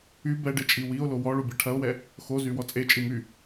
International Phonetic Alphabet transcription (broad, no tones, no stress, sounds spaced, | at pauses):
y b ɛ ɖ e t͡ʃʼ i w i o̯ l o w ɔ ɭ u bʲ ɛ ʈʰ ɐ o̯ w ɛ | x o z y w ɔ t͡sʼ e t͡ʃʼ i m y